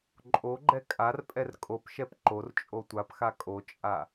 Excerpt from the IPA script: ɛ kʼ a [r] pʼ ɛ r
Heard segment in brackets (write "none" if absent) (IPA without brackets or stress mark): r